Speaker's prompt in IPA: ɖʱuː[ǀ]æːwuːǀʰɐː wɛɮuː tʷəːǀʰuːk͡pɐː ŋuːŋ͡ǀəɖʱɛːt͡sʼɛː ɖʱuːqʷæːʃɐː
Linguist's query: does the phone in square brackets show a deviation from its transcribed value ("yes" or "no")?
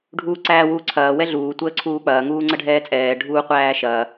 no